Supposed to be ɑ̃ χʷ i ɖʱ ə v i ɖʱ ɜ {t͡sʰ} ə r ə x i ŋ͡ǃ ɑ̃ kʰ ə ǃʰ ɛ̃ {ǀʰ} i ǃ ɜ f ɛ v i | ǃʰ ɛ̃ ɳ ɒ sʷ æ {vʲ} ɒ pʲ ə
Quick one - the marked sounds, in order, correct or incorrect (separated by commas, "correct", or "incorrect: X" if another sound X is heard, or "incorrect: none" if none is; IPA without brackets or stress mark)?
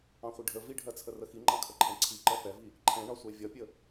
correct, correct, correct